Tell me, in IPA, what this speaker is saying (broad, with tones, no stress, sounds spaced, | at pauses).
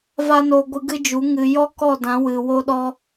v a˦ n o˧ ɡʷ ɨ˧ ɡ ɨ˦ d͡ʒ u˨˦ ŋ ɨ˨ j ɔ˦ k ɔ˦˨ d ã˨˦ w ɨ˨ w o˦ ɗ ɔ˦